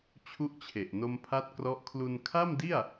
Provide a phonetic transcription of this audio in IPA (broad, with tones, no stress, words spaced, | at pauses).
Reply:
t͡ɕʰu˥˩ʔt͡ɕʰe˨˩ʔ no˧mpʰa˦˥t̚krɔ˦˥ʔ kʰlu˧n kʰa˥˩mdi˥˩a̯